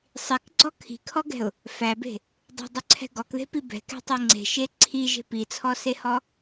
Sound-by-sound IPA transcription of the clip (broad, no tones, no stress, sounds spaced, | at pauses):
sˤ i k ɡ͡ǀ ɔ kʰ i̤ kʰ ɔ ɡ ɛ̤ ʊ̯ | f æ b e̤ | dˤ ɛ̤ dˤ ʉ ǀʰ ɛ̤ ɡ ɔ k ð e̤ p i b ɛ̤ k ɛ̤ tˤ e ŋ͡ǀ e̤ ʃ e ǀʰ i ʒ e̤ p i t͡sʰ ɔ s e h ɔ